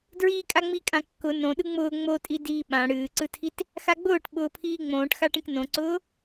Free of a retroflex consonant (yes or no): no